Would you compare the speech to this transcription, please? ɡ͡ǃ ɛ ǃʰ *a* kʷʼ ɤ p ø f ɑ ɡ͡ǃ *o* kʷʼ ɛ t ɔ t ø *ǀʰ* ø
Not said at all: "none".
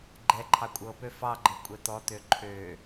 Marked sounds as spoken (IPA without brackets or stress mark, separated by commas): ɑ, ɤ, ǃʰ